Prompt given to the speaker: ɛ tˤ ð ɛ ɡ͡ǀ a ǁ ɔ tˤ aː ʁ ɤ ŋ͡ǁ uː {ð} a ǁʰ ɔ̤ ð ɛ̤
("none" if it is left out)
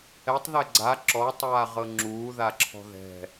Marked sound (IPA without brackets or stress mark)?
ð